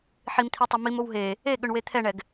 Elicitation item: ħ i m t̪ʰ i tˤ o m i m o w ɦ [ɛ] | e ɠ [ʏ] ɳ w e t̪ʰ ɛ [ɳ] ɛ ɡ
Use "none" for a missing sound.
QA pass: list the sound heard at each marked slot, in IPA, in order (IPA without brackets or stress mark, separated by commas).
e, ʏ, ɳ